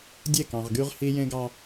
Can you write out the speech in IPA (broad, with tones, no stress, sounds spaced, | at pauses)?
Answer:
dʲ e˦˨ k ɑ̃˨ ʁ ɡ y˦ ʁ h i˦ j ẽ˦ ɡ ɑ˦